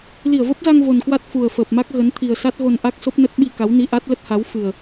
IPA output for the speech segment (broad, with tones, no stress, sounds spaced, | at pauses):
l i˧˩ ə̯ v ə˦˥ p̚ z a˧ ŋ v o˨˩ n k w a˦˥ t̚ f u˨˩ ə̯ f əː˨˩ p̚ m a˦˥ k̚ ɣ ə˨˦ n t̪ʰ i˨˩ ə̯ s a˦˥ t̚ ɣ o˧ n ʔ a˦˥ k̚ s o˦˥ p̚ n ə˦˥ t̚ ɓ i˧ k a˨˦ w n i˧ ʔ a˦˥ t̚ l ə˦˥ t̚ h a˨˦ w f ɨ˨˩ ə̯